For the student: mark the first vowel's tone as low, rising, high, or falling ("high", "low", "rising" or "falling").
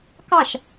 falling